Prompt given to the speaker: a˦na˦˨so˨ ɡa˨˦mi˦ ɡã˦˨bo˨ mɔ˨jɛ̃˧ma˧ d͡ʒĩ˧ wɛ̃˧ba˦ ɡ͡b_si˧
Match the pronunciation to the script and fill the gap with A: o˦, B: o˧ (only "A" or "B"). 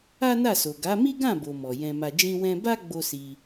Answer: A